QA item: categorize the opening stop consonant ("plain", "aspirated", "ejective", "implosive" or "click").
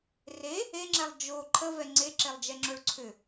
click